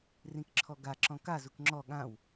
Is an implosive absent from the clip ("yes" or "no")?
no